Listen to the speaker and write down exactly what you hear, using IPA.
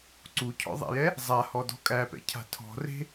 ǀucʰɔ̰ðˤæ̰jɛ | zˤahɔdɔ̤ kʼæpɛ̰cʰa̤ tʰɔ̤re̤

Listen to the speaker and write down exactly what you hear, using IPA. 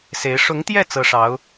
se˧˥ɪ̯ ʂʊ˧˥ŋt̪jɛ˥˩ t͡sɤ˥ʂɑ˧˥ʊ̯

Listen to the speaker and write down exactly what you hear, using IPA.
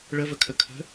ɭəvəkʰə kʰə̤

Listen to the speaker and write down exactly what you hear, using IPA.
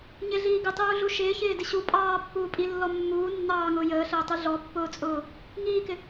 ɲɪɮiː ɡɪtˤuːɮu ʃɪːçɪːdɪ ɕu pʼɑːpːuː pʼilːɔ mːuː nːɑːŋʊː jəːɬəːtˤi ɮɔpːʊːt͡sʼʊː | ŋiːkɪ

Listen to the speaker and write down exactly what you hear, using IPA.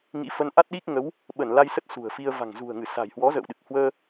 ŋḭ˧˥fə˧n ʔa˦˥t̚ɗi˦˥k̚ŋə˨˦w | ɓə˧˩nla˧jsə˦˥t̚ sṳ˨˩ə̯ fi˧ə̯ va̤˨˩ŋzṳ˨˩ə̯ŋɨ˧˩sa̤˨˩j hwɔ˨˦ zə̰ː˧˨wɗɨ˨˩k̚hwəː˧

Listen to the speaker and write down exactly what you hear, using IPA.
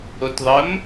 otðˤəm

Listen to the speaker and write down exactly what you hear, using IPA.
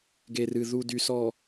ɡe˨rɨ˨ ðu˨ dy˨sɔ˨

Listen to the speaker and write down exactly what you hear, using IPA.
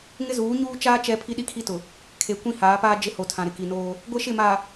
ŋɪ˦zuː˨˦ɲuː˦ t͡ʃaː˦ t͡ʃɛ˦ pʰi˦ɗi˦kʰi˦tʊ˨ | kʰe˨kʷĩ˦haː˨˦paː˦ d͡ʒɪ˦ho˨tʰã˨ɾɪ˨ ki˨noː˦ | ɡʷe˦ʃɪ˦˨ma˨

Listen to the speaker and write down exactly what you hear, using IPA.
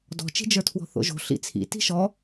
dɔ̤t͡ʃi̤d͡ʒə˞tʰwɔ̤ θo̰ʒo̤ ɬḭt͡sʰḭ ti̤ʃɔ

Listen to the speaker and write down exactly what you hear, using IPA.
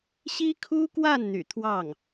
ɕi˥kʰu˥kwa˥˩n n̪y̰˨˩t̪ʰwɑ˥˩ŋ

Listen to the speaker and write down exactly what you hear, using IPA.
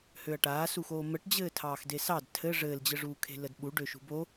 høɐ̯ʈaːsuxoː məʈd͡ʑɘː tʰɑːxdesɑd tʰɘ ʐɘːld͡ʑɘʐuːkʰe̤ lədɓuɖøʃṳ bo

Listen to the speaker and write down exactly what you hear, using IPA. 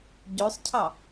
ɟøsˤcʰɑ

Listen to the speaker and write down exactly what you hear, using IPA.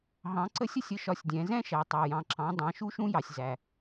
ɦɑ̃˩˧ǀə˧˥sʲə˧˥sʲ ə˧˥ʃɒ˧sʲdʲɛ̃˩˧ zɛ̃˥ʃæ˩˧ tˤɑ˩jɑ̃˩ǁɑ̃˩˧ dˤɑ̃˩˧ʃu˧˥ʃũ˧˥jɑ˩sʲ zæ˩

